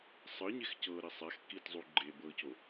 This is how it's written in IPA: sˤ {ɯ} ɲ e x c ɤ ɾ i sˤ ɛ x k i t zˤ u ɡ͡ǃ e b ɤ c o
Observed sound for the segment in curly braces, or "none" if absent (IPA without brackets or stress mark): ɯ